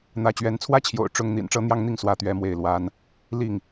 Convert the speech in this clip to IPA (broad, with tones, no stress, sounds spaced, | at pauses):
n̪ ä˨˦ t͡ɕ ɥ ɛ˨˦ n t͡sʰ w ä˦ t͡ɕʰ j o̰˨˩ ʊ̯ ʈ͡ʂ ʊ˦ ŋ n̪ ḭ˨˩ n ʈ͡ʂ ɤ˦ n̪ j ɑ˦ ŋ n̪ i˥˨ ŋ s w ä˥˨ t̪ ɥ ɛ˦ m w e˥˨ ɪ̯ l w a˦ n | l i˥˨ ŋ